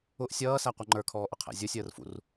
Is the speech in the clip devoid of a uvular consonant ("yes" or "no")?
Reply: no